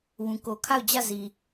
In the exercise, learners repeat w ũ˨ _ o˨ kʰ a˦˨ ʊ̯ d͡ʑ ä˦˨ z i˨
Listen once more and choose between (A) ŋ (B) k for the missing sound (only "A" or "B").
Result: B